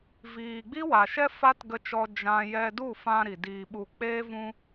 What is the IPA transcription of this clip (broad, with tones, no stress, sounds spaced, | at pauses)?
v iː˨ ɡ͡b i˦ w a˨ ʃ ɛ˦ f a˦ t ɡ ə˧ t͡ʃ ɔ˧ d͡ʒ ã˦ j ɛ˧ d u˦˨ f ã˧ ɾ i˨ d iː˧ ɓ u˧ k͡p eː˦ v ũ˦